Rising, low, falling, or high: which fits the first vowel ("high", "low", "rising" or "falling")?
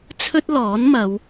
high